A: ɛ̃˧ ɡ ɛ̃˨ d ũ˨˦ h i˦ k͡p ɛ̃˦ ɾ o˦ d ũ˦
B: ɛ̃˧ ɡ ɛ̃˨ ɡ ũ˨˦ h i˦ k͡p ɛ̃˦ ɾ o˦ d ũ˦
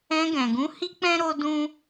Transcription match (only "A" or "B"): B